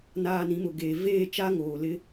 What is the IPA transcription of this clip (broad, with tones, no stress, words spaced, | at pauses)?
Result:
naː˨ nĩ˨˦mʊ˨ɡeː˨ veː˦˨t͡ʃa˦ ŋoː˨ lɪ˦